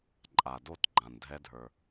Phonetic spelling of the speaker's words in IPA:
ǃʼ a˨ d o˦˨ t ɡ͡ǃ ã˨ n dʱ ɛ˦ dʱ ə˞˦

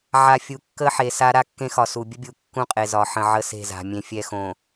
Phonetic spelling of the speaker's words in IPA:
ʕ a˨ fʲ u˨ kː ə˦ ħ e˨ s a˦ ɾ a˦ kː ẽ˦ x ɒ˨ s u˨ bʲ ə˦ bʲ u˨ kː ũ˦ qʼ e˨ z ɒ˨ ħ ə̃˨ ʕ ə˦ s e̤˦˨ z a̤˨ mʲ ẽ˨ fʲ ɛ˦ x õ˨

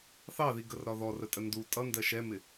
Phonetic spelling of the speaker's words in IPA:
θ ɑ ð i ɡ ə r ɾ ɒ ð ɔ r ə tʼ ə n d u tʼ ʌ n d ɜ ʃ ɛ m ɪ

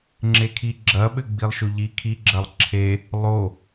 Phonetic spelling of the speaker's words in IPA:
ŋ͡ǁ e kʰ i ɡ͡ǁ ɐ ɓ ɘ ɡ͡b i lˠ ʃ o ʎ i kʰ i ɡ͡ǁ ɐ lˠ ǁʰ e | lˠ o

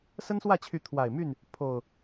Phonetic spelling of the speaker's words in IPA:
s ə˦ n s w ä˥˨ t͡ɕʰ y˨˦ t̪ʰ w a˨˩ ɪ̯ m y˥˨ n | pʰ o˨˩ ʊ̯

